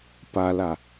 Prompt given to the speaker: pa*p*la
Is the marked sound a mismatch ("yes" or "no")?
yes